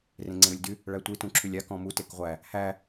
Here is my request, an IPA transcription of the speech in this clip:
r ẽ ŋ͡ǀ ẽ ɾ u lʲ d y | ɭ æ tʷ i t ũ ǁʰ y lʲ a k ɔ̃ m u t e k ʁʷ æ | h æ

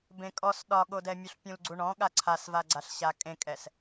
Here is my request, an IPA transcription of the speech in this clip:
b ẽ kʼ ɔ s ɗ ɒ ɠ o d ɛ mʲ o ɬ pʲ ũ l ɡ͡ǀ u ɳ ɔ̃ ɠ a ǀʰ a s v a ɡ͡ǀ a ɬ ɕ a kʼ ẽ kʼ ɛ s

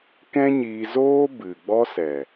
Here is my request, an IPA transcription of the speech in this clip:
k ɛ̃˦ ɲ iː˧ z oː˦ b ɨ˨ ɡ͡b ɔ˦ s ɛ˨

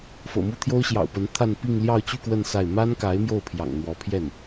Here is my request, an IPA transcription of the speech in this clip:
f ɤ̰˨˩ m u˥ t̪ʰ j o˥ ʊ̯ ɕ j ɑ̰˨˩ ʊ̯ p ə˧˥ n t̪ʰ a˥˧ n p i˥˧ ŋ l j ɑ˥˧ ʊ̯ t͡ɕ y˥˧ k w ə˥˧ n s a˥˩ ɪ̯ m a˥ n k a˧˥ ɪ̯ m j o˥˩ ʊ̯ pʰ j ɑ̰˨˩ ŋ n̪ w ɔ˧˥ pʰ j ɛ˥˩ n

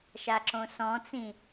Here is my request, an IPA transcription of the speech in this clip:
ʃ a ǁ õ s ɔ̃ t͡s ĩ

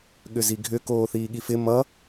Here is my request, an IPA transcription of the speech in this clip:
ɠ ʏ z i ɡʱ ʏ k oː θ iː ɠ i f ɪ m ʌ

